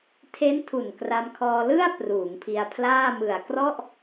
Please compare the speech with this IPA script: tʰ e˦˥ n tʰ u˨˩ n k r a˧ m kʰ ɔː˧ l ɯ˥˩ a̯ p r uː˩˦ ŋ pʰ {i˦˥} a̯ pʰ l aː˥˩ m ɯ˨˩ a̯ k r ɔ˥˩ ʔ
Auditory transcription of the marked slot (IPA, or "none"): i˧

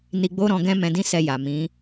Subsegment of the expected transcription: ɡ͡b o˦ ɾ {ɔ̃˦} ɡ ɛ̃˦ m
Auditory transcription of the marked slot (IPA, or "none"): ɔ̃˧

